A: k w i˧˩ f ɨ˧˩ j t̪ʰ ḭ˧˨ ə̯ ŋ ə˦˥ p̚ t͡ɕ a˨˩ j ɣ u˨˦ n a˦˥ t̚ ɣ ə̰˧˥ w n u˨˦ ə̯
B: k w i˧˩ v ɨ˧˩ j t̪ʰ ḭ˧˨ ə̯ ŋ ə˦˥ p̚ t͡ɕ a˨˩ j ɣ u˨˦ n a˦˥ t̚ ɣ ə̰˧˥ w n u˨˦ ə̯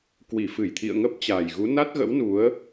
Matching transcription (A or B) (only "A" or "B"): A